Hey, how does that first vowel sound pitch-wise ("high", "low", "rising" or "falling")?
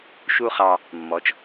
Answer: high